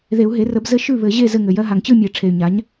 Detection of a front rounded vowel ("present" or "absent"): present